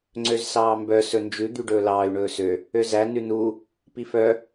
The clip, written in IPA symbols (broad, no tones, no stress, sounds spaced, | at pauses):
ŋ͡ǀ ø z s ɑː m b œ s ɵ n d͡ʒ ʉ d̪ y ɖ ɵː l ɑː y̯ ɳ ɵː s ø | ø z æ n ʉ n u | p i f œ